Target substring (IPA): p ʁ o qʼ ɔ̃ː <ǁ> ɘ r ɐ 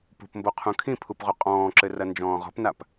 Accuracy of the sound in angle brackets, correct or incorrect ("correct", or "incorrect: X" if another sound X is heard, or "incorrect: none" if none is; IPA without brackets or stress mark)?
correct